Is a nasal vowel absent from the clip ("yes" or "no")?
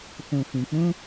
no